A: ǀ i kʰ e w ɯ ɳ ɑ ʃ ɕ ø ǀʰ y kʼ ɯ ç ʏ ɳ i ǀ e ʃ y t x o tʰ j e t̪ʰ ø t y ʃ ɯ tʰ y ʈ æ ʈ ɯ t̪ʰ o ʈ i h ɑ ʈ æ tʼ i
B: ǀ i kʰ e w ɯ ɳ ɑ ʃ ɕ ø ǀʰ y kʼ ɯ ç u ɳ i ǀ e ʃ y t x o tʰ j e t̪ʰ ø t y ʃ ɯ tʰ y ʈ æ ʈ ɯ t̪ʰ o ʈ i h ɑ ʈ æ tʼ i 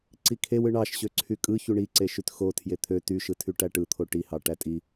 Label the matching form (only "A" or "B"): B